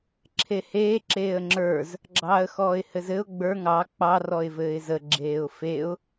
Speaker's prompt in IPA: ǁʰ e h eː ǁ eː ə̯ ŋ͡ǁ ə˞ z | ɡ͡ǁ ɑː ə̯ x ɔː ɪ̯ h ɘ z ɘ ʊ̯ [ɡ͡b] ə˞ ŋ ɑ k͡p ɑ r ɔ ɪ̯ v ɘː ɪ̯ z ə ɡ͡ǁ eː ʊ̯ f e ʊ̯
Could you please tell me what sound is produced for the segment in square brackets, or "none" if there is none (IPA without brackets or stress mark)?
ɡ͡b